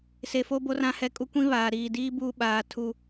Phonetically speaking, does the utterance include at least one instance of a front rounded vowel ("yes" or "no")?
no